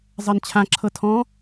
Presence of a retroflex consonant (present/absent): absent